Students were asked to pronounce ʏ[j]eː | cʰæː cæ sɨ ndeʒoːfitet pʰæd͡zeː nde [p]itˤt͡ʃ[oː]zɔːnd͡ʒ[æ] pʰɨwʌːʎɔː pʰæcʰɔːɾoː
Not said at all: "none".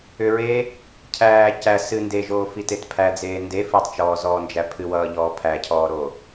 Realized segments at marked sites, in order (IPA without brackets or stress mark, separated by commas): ɹ, f, ɔː, æ